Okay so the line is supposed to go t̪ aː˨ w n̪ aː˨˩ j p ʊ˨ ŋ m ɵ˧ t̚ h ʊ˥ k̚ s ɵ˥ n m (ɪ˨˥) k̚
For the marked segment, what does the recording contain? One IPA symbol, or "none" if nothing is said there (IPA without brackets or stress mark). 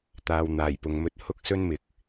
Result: ɪ˨˥